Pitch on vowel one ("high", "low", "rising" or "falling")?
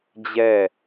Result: falling